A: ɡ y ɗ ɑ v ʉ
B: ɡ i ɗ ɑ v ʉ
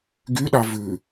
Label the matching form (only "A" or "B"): A